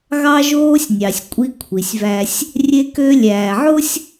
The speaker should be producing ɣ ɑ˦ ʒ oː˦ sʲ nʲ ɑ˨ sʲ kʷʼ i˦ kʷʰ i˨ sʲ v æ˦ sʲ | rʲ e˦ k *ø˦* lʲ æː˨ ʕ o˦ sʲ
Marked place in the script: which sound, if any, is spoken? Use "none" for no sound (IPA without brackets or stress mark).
ø˦